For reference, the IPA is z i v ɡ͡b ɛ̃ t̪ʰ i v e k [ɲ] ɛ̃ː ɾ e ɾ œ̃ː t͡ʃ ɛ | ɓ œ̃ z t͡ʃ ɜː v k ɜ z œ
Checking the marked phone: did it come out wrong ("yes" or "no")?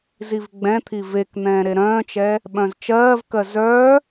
yes